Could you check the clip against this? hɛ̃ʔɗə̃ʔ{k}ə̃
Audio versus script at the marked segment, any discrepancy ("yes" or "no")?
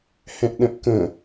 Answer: no